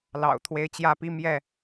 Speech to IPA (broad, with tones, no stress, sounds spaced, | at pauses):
l ɑ̰˨˩ ʊ̯ t̪ʰ w e˦ ɪ̯ t͡ɕ j ä˥˨ p i˦ m j ɛ˥˨